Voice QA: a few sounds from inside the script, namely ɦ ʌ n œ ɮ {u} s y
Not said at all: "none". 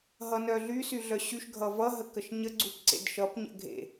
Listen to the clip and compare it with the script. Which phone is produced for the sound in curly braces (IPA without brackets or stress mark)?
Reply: y